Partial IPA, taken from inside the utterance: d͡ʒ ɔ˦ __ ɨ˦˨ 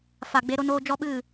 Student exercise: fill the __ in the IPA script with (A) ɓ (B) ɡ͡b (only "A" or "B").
A